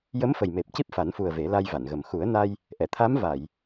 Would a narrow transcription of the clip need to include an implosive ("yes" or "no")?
no